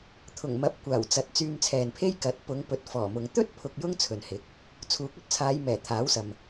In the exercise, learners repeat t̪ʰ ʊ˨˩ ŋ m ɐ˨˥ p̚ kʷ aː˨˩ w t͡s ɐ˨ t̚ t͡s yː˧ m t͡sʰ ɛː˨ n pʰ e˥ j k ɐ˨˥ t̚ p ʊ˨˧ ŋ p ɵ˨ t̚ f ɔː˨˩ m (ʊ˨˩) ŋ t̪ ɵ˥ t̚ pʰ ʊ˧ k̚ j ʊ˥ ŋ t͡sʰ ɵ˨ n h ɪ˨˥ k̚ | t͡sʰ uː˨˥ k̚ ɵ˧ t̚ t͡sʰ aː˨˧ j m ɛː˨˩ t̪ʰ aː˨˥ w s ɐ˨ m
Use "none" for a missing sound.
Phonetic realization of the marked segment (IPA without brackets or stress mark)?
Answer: ʊ˨